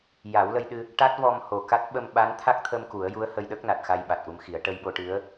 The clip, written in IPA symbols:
j a˨˩˦ w l ə˧ j ɗ ɨ˧ | ʈ a˦˥ t̚ v ɔ˧ m h o˨˩ k a˦˥ t̚ ɓ ə˧ m ɓ a˧˥ n t̪ʰ a˦˥ k̚ t̪ʰ ə˧ m k u˨˩˦ ə̯ j u˧˥ ə̯ h ə˧ j ɗ ə˦˥ k̚ n a˨˩ t̚ x a˧ j ɓ a˨˩ t̚ ʔ u˧ m x i˨˩˦ ə̯ ʈ ə˧ j ɓ o˧ ʈ ɨ˧˥ ə̯

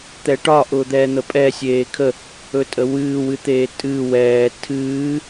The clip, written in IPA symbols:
t̪ ɛ ʈ ɒ ʔ ʊː d̪ ɛː n̪ ə pʼ ɛ sʲ eː kʰ ə | ɵ tʼ ə w ɨː w ɨ t̪ eː tʼ ɨː w ɛː tʰ ɨː

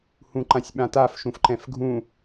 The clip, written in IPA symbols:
h ũ ǃ ã sʲ ɓ ã t a f ʃ ũ f ǃ ɛ̃ f ɡʱ ũ

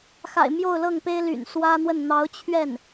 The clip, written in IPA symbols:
x a̰˨˩ ɪ̯ m j o˥˧ ʊ̯ l ɤ˥˩ ŋ p e˥ ɪ̯ l y̰˨˩ n s w ä˥ n̪ w ə˥˩ n n̪ ɑ˧˥ ʊ̯ t͡ɕʰ ɥ ɛ˥˩ n

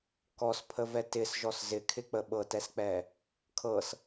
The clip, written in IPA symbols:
k ɔ s pʰ ə v ɛ t ɪ s ʒ ɔ s z ɪ kʰ ɪ k͡p ə ɓ ɤ t ɛ s k͡p ɛ | kʰ ɤ s

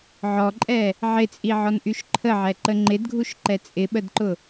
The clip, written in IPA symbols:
ʕ ɔ ǃʼ ɛ | ʕ ɪ t͡sʼ i ʕ ɔ n ʔ y ʃ ǃʰ ə ʕ ɛ ǃ ə ŋ͡ǃ ɪ d ɡʱ u ʃ ǃ ɛ t͡sʼ ɪ ɓ ə d ǃ ʊ

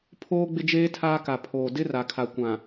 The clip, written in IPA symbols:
pʰ oː˦ ɡ͡b ɪ˦ d͡ʒ eː˦ tʰ aː˦ k a˨ pʰ oː˨ d ɪ˦ r a˨ kʰ a˨ kʷ ã˨

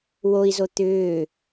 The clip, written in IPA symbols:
w o i̯ z o t̪ ʏː

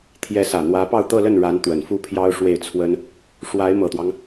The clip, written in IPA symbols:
t̪ʰ j ɛ˧˥ s ä˨˩ n̪ w ä˧˥ p ɑ˥˧ ʊ̯ t̪ ɤ˥˧ l ə˥˩ n ɻ a˧˥ n t̪ w ə˨˩ n f u˥˩ pʰ j ɑ˥ ʊ̯ ʂ w e˥˩ ɪ̯ t͡sʰ w ə˥ n | ʂ w a˧˥ ɪ̯ m ɤ˨˩ t̪ w ɑ˦ ŋ

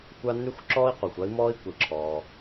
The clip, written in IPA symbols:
kʷ a˥ n y˥ xʷ ǁ ɔː˥ i̯ q u˩ xʷ a˥ i̯ m ɔː˥ i̯ kʷ i˩ ǁʰ ɔː˩

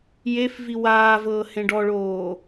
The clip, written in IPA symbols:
j e f v i w aː v ɤː h ẽ ɖ ɔ ɭ oː

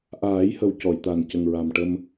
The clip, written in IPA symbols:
ʔ aː˨˩˦ j h ə˨˩ w c ɔ˨˩˨ j t̪ a˨˩ n c ə˨˩ ŋ ɹ a˨˩ m ʈ ə˧ m

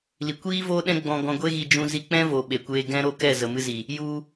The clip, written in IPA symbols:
l i˨ kʷ iː˦ v oː˦ ɗ ɛ̃˦ ɡ͡b ɔ̃˧ ɡ ɔ̃˧ ɡʷ e˦ ɣ i˧ d͡ʒ ũ˧ z i˧ k͡p ɛ̃˦ v o˨ ɓ e˨ kʷ eː˧ ɡ ɛ̃˦ ɾ o˦˨ k ɛ˦˨ z ə˨ m ɨ˧ z i˨ | j u˧

